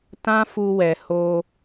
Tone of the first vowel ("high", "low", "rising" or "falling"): high